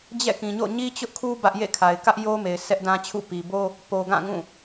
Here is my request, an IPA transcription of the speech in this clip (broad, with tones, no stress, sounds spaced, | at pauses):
d͡ʑ ɛ̰˦˨ k ĩ˨ ɲ o̰˦˨ ɲ i˦ t͡ɕ ʊ˦ ʔ kʰ u˦ b ä˦ ʔ j ḛ˦˨ kʰ a˨ ɪ̯ k ä˦ ʔ j o˦ m e˨ ɪ̯ sʰ ɛ˦ ʔ d ã˦ t͡ɕʰ ṵ˦˨ p i˨ b o˦ | p o˨ ɡ ã˦˨ ŋ ũ˦˨